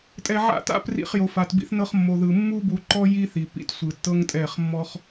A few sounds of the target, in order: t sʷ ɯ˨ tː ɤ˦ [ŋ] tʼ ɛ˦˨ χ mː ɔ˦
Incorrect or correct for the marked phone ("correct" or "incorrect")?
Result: correct